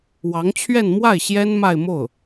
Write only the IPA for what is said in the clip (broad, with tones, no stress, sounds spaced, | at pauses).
w ɑ˧˥ ŋ t͡ɕʰ ɥ ɛ˥˧ n m w a˥˩ ɪ̯ ɕ j ɛ˥ n m a˥˧ ɪ̯ m o˥˩ ʊ̯